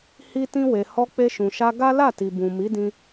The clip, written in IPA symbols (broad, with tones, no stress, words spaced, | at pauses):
hi˦tĩ˦we˧ hɔ˧k͡pe˧ʃũ˨ʃa˧ ɡa˦la˦˨ti˨bũ˨ mi˨˦dĩ˧